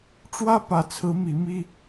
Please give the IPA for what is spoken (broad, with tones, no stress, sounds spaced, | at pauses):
ʈ͡ʂ w ä˦ p ä˨˦ t͡sʰ ɹ̩˨˦ m i˨˦ m i˦